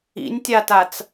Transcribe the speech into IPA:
ḭ nʲ tʲ a t a t͡s

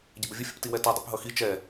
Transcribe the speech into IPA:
ɟ ɪ b ə vʲ ə fʲ ə̰ p t i w ɛ t ɛ dˤ ɛ̰ p ɦ ʌ x i t͡ʃ ɛ

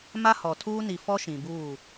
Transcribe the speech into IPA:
m a˦ h ɔ˨ tʰ uː˦ n i˨ f ɔ˦ ʃ ĩ˨ b uː˦˨

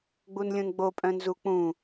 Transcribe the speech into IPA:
ɡ͡b u n lʲ ũ n ɡ͡b o pʼ œ̃ n z u k͡p ũ

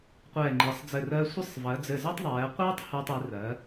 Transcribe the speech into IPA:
qʷ ɛː˧˩ ŋ͡ǃ i˩˧ sˤ d͡z ɘ˧˩ r ɜ˧ sʷ ɘ˥˧ sˤ v ɜ˩˧ d͡z ɘ˧˩ z ɛ˥ tˤ ðˤ ɛː˩˧ qʷ iː˥ tˤ h uː˧ tˤ i˩˧ r ɜ˩˧

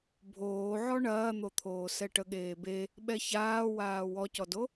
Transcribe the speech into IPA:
bʱ oː ʕ ɔ ɳ ɐː n̪ o t̪ʰ oː s ɛ ʈ ə ɠ eː b e | ɓ ɛ ç aː w aː w ɔ c ɔ d o

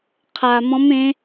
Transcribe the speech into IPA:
qʰ a˧ m ɔ̃˦˥ m ẽ˦˥

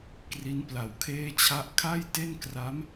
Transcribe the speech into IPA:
k r i˦˥ n p l a˨˩ w kʰ eː˥˩ t͡ɕʰ a˥˩ ʔ kʰ a˥˩ j t e˥˩ n k r a˦˥ m

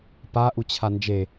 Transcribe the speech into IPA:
p a ʔ u t͡ɕʰ a n d͡ʒ e

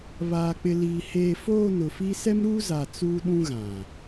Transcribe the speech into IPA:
β aː˨ k͡p ɪ˨ l iː˨ h eː˨ f oː˦˨ n ʊ˨ f i˦ s ɛ˦ m ɾ uː˦ z a˨ t͡s uː˦ ɗ ũ˦ ɣ ã˨

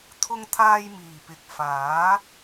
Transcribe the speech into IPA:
t̪ʰ ʊ˧ ŋ t̪ʰ aː˧ j m iː˨˩ p ɪ˨ k̚ f aː˨˥

